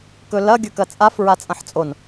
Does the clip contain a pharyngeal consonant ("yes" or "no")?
yes